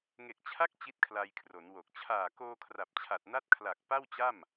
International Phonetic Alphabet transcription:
ŋ e˨˩ k̚ t͡ɕʰ a˦˥ k̚ t͡ɕ i˦˥ t̚ kʰ l a˧ j kʰ r o˩˦ n w o˨˩ k̚ t͡ɕʰ aː˨˩ k oː˧ kʰ r a˨˩ p̚ t͡ɕʰ a˨˩ t̚ n a˦˥ t̚ kʰ l a˨˩ k̚ p a˥˩ w t͡ɕ a˥˩ m

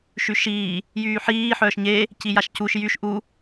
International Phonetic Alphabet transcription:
ʃ y ʃ iː | j yː ħ iː ħ œː ʃ ɲ e | c i j a ʃ c u ʃ j y ʃ ʔ u

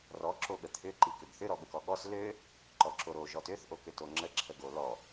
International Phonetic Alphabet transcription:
r ɔ ǁ o ɠ ə t̪ʰ ʏ ǃ i k ʏ b θ ʏ ɾ ɔ ɠ ə k ɔ ɠ ɔ s l ø | ǃ ɔ ǁ o ɾ o ʒ ɔ t ø θ ʔ o k ʏ t o ŋ͡ǁ ə ǁʰ ə ɡ o l ɔ

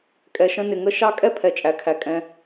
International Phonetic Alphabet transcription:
kʼ ɛ˧ ʃ ə̃˦ n ɪ˧ ŋ ə˦ ʃ ɑ˦ kʼ ɛ˦ pʰ ɛ˨ t͡ʃʼ æ˨ kʰ æ˨ kʼ ɛ̃˧

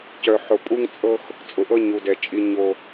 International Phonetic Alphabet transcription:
c œ˨ ħ ʊ˨ pʼ u˦ ŋ t͡sʼ ɤ˦ x | t͡sʼ ʊ˨ ʔ ɤ˦ ɲ u˨ d ɛ˨ t͡ʃʼ i˦ ɲ o˦

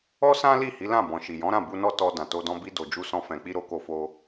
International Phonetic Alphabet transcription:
ɔ˦ s ã˦ l i˦˨ h i˨˦ l ã˦˨ b ɔ̃˨ ʃ i˨ j ɔ̃˨˦ ɾ ã˦˨ b u˧ n ɔ˦ t ɔ˧ d ã˨ t o˧ d ɔ̃˧ b i˦ d o˧ d͡ʒ u˦ s ɔ̃˦ f ɛ̃˧ k͡p i˦ ɾ o˦ k o˦ f o˦

